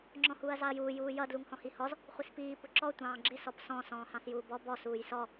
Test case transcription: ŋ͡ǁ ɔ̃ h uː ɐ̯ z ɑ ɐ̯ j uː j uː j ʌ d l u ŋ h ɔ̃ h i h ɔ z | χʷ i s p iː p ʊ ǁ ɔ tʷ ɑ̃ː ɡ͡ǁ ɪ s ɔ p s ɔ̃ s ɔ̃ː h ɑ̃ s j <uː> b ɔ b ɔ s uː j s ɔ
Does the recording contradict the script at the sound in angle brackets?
no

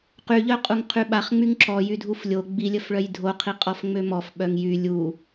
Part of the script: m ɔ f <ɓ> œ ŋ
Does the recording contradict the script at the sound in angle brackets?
no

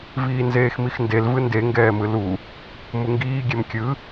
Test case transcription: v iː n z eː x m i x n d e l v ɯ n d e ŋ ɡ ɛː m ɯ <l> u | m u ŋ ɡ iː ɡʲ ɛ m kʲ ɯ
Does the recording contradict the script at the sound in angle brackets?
no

